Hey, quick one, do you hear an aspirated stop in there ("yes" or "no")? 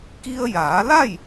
no